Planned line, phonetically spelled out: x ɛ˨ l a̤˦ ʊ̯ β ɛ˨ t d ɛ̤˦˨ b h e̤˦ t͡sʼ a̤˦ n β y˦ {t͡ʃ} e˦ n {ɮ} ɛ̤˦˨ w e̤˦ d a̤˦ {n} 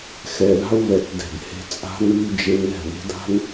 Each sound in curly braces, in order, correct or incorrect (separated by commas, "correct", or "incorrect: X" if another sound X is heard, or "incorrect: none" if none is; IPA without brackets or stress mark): incorrect: d͡ʒ, incorrect: l, correct